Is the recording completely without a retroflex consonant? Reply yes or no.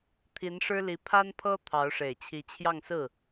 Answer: no